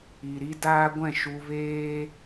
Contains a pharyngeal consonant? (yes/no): no